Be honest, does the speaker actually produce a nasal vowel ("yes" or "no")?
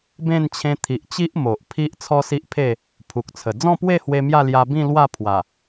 yes